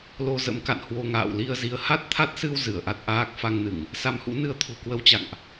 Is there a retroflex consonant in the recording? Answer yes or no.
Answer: no